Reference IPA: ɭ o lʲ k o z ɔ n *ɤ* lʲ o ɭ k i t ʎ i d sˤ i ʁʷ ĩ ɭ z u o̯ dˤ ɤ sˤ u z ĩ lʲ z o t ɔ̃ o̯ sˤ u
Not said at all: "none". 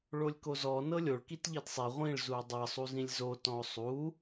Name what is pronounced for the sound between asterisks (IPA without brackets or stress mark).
ɤ